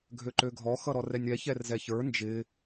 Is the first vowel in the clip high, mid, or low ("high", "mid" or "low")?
mid